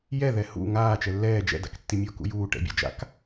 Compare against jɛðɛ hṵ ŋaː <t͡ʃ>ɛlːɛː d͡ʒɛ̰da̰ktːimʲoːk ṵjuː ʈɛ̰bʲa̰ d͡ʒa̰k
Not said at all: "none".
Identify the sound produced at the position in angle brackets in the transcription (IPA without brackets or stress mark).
t͡ʃ